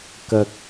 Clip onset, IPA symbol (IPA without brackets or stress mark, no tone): k